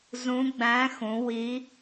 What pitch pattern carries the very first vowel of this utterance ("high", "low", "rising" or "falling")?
rising